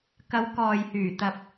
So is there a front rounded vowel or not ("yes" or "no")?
yes